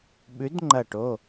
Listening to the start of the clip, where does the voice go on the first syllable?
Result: rising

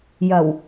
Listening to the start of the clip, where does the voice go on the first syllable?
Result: low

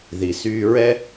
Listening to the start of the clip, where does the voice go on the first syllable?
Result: low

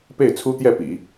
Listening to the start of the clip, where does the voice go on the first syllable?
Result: falling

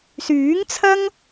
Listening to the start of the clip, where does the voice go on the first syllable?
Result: rising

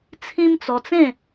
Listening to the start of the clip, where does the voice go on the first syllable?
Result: high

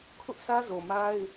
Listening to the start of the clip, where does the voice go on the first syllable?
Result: high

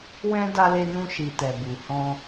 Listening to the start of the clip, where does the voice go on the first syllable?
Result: high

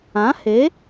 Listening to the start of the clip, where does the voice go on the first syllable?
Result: rising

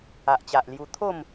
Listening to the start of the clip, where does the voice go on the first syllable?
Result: low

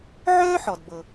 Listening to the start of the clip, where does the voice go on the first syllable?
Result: high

